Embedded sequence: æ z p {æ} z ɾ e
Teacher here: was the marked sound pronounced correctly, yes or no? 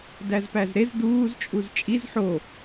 yes